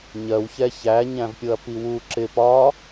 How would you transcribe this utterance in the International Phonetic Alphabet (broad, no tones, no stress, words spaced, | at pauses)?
ɲɜw çɛçæ ɲæ̃vpʲʊɐ̯piwu ǁɪ pɒ